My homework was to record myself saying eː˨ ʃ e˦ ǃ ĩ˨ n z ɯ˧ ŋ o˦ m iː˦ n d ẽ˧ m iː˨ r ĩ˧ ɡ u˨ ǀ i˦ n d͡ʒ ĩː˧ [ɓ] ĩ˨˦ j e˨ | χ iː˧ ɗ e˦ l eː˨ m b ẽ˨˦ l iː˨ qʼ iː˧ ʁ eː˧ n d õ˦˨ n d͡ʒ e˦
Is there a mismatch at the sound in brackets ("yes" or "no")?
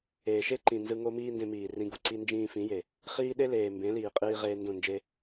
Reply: yes